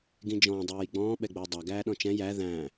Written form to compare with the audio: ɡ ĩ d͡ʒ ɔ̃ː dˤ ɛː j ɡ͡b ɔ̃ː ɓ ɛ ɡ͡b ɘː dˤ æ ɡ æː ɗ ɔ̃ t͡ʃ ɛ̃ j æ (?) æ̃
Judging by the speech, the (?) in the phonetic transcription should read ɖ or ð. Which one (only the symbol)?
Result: ð